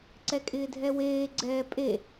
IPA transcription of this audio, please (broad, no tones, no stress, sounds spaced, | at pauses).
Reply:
ǀ ɛ kʼ ɪː dʱ ɛ w eː ɡ͡ǀ ɛː pʼ e